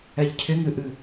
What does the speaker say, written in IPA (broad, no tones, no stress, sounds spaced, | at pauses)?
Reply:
ɛ ʎ cʰ ɪ ŋ ɨ ʔ ɨ